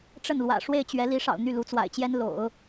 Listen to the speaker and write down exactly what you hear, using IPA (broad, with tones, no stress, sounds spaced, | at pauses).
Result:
ʈ͡ʂ ə˥˩ n l w ä̰˨˩ ʂ w e˥˩ ɪ̯ t͡ɕ ɥ ɛ˧˥ l i˧˥ ʂ ɑ̰˨˩ ʊ̯ n̪ y˥˩ l u˧˥ t͡s w a̰˨˩ ɪ̯ t͡ɕ j ɛ˥ n l o̰˨˩˦ ʊ̯